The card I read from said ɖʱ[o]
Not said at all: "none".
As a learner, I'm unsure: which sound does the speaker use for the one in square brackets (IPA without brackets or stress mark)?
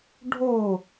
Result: o